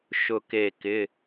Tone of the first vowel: falling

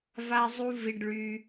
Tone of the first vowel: high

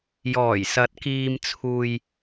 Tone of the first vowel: low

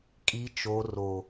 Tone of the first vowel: low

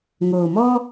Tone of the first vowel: low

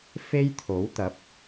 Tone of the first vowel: high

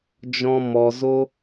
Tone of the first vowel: high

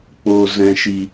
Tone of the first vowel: low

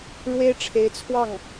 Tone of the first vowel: high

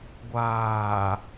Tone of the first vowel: low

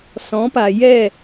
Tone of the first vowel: rising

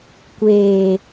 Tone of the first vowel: low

